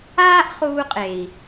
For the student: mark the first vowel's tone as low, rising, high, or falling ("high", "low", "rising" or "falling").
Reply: high